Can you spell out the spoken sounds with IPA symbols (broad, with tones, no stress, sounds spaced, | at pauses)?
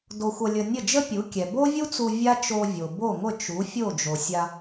d o˧ xʷ ʌ˧ lʲ ə˧ nʲ ə˥˩ d͡ʒ ə˥ pʲ u˩˥ kʲ ɛ˩ b o˥ vʲ u˥ t͡s u˧ vʲ a˥ t͡ʃ o˧ vʲ o˩ b o˥˩ ŋʷ ə˥˩ t͡ʃ u˩˥ fʲ o˥˩ d͡ʒ o˩ sʲ a˧